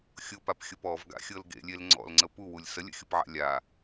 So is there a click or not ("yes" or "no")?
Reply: yes